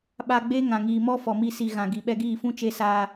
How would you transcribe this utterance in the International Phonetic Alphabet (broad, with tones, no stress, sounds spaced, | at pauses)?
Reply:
ɓ a˧ ɡ͡b e˦ ŋ ã˨ ŋ iː˨ m ɔ˦ f ɔ˨ m i˧ s i˨ ɣ ã˨ ɡ i˨ ɓ ɛ˧ ɡ iː˦˨ f ũ˦ t͡ʃ e˧ s aː˧